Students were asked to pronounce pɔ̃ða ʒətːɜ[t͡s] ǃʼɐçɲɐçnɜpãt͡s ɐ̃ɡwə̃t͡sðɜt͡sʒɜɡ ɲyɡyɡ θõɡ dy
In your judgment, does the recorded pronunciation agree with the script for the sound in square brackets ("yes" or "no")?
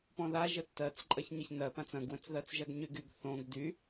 yes